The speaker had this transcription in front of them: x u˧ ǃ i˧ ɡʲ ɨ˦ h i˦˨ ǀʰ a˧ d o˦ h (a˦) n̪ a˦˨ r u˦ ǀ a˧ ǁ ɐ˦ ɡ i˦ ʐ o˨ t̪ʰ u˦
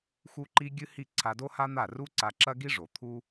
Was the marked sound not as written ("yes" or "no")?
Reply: no